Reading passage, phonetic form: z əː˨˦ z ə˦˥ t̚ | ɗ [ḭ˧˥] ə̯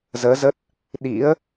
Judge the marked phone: correct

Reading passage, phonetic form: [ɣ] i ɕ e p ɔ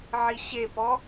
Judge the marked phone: incorrect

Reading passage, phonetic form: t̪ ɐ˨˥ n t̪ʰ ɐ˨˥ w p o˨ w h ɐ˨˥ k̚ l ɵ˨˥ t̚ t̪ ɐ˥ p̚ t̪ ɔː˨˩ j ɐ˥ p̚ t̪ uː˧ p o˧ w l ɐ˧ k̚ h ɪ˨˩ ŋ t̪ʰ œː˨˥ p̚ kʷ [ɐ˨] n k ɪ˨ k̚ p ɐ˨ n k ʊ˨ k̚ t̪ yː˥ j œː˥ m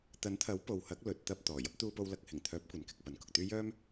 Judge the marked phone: correct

